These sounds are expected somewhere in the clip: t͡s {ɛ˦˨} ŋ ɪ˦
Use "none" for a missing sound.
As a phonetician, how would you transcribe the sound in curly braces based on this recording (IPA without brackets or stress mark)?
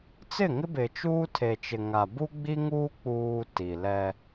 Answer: ɪ˦˨